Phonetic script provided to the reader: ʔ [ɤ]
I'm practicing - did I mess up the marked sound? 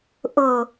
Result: no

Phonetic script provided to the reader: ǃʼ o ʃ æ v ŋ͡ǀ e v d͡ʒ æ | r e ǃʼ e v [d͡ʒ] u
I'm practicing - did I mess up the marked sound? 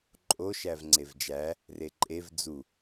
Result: yes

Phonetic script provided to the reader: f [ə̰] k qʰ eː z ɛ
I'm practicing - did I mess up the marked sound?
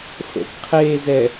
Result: no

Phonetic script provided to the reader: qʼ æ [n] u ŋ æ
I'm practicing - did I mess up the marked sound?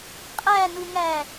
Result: no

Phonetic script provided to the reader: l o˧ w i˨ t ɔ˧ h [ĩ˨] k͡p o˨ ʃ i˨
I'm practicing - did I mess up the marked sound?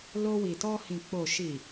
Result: no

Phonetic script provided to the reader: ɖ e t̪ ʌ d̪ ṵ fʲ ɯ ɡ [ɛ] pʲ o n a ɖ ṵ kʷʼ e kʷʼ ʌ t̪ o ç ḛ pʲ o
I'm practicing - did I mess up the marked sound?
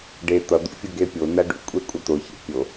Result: yes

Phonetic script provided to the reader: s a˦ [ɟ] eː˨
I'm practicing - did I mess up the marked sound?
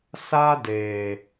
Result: yes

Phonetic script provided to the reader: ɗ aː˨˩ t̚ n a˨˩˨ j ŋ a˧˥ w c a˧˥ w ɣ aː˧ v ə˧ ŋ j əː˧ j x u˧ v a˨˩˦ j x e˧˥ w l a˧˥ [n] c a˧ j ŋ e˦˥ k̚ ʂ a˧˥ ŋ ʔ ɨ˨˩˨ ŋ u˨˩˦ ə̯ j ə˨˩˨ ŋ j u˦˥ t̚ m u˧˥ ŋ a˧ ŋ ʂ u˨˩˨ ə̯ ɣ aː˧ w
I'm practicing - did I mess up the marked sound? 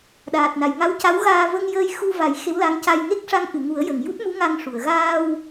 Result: yes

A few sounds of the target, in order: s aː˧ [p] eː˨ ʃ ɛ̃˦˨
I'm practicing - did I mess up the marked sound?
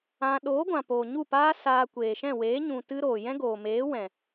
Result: yes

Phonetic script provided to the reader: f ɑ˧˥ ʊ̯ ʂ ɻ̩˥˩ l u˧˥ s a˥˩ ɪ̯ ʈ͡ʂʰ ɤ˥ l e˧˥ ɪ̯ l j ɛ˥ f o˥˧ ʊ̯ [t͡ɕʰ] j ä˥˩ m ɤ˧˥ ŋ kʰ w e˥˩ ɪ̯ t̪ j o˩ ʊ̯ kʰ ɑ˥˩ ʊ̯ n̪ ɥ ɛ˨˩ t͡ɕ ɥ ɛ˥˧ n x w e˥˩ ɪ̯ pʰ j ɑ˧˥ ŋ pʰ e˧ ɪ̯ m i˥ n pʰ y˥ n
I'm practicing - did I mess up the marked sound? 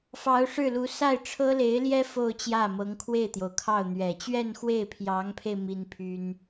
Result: yes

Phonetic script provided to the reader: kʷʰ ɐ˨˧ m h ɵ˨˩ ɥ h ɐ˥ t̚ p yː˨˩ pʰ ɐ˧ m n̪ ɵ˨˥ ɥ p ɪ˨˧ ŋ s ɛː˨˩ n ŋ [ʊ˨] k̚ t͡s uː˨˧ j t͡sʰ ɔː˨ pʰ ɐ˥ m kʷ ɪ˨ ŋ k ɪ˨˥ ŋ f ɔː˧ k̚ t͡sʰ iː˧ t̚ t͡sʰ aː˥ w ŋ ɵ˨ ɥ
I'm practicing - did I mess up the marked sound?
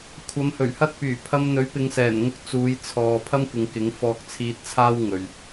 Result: yes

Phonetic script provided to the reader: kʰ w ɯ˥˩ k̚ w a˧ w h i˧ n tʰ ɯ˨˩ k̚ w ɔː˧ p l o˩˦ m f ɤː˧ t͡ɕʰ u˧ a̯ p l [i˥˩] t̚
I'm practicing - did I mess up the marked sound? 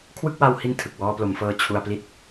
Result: no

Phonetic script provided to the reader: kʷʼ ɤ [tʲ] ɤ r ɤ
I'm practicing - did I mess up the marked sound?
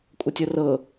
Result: no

